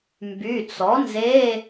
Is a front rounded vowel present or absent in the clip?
present